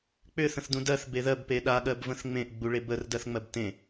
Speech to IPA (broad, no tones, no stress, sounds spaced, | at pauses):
k͡p ʏ θ ə̃ θ d ũ d ɜ θ b e ð ɜ b p e ɗ a ɠ ɜ b v ə̃ θ ŋ͡m ẽ ʔ ɡ͡b u ɭ e b ə r d ɜ θ ŋ͡m ɜ b t ẽ